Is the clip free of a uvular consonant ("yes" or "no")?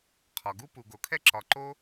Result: no